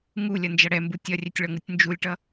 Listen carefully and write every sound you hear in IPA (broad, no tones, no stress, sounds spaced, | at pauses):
ŋ u lʲ ʌ n d͡ʒ ʌ ɽ ɛ m b u tʲ ʌ rʲ ɛ tʲ ɭ ʌ ŋ ɯ tʲ n d͡ʒ u lʲ ʈ ʌ